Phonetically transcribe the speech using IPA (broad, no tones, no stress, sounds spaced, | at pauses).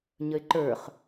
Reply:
ɲ ə ɪ̯ ǃ ə˞ χ